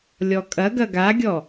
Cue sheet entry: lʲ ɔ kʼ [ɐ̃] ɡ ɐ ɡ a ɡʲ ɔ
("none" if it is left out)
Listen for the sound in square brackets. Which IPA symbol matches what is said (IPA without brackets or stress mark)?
ɐ